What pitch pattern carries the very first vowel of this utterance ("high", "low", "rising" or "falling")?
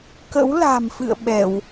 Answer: rising